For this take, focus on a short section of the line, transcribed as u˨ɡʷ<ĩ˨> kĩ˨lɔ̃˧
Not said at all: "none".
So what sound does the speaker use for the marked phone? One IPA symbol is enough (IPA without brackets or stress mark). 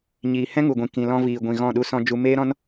ĩ˨